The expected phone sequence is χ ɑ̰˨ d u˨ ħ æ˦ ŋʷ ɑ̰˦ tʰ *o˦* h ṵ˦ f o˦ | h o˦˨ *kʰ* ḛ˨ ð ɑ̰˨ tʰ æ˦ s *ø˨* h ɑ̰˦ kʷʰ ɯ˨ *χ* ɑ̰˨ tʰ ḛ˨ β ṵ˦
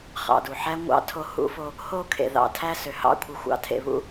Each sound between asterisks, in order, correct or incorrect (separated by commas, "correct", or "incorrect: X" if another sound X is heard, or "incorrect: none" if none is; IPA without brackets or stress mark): correct, correct, correct, incorrect: xʷ